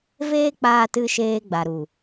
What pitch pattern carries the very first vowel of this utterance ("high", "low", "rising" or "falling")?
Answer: high